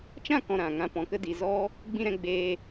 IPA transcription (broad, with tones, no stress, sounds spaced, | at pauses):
t͡ʃ ã˦˨ k ɔ̃˨ ɾ ã˨ ŋ ã˧ p ɔ̃˨ k ə˧ d i˨ z ɔ˦ | ɡ͡b ĩ˧ ɾ ɛ̃˧ ɡ͡b eː˧